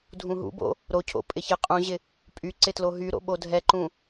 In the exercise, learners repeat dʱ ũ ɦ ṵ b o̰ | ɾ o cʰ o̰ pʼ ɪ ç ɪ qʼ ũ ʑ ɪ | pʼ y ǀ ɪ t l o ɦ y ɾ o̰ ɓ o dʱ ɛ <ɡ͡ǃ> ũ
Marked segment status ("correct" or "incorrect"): incorrect